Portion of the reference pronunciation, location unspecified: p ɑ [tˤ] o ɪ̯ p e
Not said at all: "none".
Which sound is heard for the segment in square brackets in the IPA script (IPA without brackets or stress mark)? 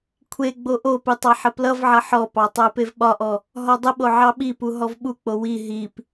tˤ